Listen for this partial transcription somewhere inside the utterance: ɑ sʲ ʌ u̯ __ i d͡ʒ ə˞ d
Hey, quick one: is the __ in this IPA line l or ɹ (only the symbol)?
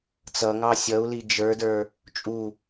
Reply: l